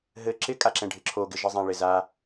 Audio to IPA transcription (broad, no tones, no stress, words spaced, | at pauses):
ɦɘ ǁɪkʼaǁɛ̃ɖʱɪ ǁʰoɡɪʒɪzˤã ɭɪza